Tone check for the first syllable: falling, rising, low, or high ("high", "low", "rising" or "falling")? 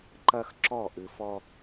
high